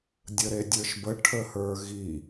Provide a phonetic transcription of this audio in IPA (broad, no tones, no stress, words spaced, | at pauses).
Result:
dʲəɾedʲə˞ʃbə ʈʰəhə˞ɣi